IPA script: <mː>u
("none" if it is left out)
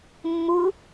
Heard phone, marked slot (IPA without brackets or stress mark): mː